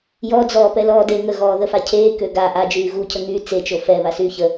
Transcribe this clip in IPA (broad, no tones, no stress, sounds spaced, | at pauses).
j ɔ d͡z ɔː p ɛ l ɔː d e ŋ ə ɣ ɔː ð ə f a cʰ eː k ø ɡ a ʔ a d͡ʒ yː ɣ u cʰ ə ŋ yː t͡s e t͡ʃ o f ɛ β a s yː ç ə